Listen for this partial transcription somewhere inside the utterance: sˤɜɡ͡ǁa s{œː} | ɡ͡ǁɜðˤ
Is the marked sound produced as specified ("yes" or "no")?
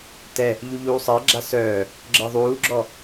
yes